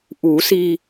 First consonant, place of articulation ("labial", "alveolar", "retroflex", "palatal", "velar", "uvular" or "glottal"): glottal